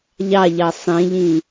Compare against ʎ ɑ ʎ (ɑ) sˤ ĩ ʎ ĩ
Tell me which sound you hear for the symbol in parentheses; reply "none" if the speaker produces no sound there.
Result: ɑ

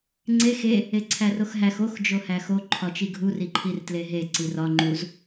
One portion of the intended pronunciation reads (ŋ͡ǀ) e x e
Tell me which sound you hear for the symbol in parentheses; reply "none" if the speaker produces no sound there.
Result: ŋ͡ǀ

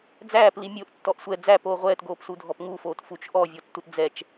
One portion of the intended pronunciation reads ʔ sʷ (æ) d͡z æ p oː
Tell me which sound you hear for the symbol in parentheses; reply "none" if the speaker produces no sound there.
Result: ɛ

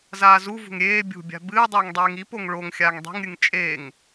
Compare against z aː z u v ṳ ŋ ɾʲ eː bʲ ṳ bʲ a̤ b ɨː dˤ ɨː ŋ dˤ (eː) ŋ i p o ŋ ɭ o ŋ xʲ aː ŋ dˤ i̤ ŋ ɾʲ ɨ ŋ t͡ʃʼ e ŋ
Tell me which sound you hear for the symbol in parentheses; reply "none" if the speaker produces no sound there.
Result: eː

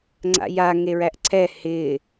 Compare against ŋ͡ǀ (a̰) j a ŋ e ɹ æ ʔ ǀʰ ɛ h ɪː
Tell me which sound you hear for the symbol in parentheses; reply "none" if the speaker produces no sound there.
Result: a̰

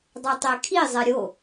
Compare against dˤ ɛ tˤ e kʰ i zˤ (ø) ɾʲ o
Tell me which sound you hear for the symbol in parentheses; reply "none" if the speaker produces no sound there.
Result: ɛ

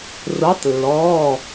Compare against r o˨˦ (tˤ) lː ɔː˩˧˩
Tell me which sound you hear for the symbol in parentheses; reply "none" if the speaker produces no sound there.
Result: tˤ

